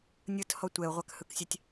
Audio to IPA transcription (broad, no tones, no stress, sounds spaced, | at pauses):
nʲ ɯ t h ɔ tʷ ɛ ʊ̯ ʁʷ a k h ɯ k sʲ a tʲ